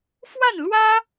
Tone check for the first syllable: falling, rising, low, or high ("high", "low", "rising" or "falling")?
falling